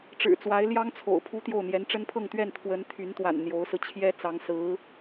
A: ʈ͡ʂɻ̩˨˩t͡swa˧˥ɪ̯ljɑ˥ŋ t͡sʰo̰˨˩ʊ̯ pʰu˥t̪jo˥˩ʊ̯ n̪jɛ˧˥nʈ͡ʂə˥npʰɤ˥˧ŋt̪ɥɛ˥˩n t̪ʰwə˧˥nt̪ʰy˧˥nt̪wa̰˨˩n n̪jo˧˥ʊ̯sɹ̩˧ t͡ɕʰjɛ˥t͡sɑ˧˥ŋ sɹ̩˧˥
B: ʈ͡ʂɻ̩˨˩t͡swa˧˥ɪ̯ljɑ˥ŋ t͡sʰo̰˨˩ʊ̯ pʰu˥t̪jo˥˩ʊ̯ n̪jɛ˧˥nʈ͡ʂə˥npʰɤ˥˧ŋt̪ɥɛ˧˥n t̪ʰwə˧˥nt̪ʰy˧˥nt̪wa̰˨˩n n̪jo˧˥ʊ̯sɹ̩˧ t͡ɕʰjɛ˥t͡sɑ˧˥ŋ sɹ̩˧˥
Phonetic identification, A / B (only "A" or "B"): A